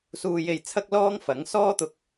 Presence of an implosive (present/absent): absent